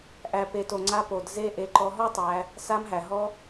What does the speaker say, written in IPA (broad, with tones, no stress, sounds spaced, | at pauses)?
ʔ æ˨ p e˨ t o˨ ŋ͡ǀ a˧ p o˨ d z e˧ ʔ e˧ ǃ ɔ˧ ɦ ɔ˦ tˤ æ˧ | s a˧ m ɦ æ˨ ɦ ɔ˧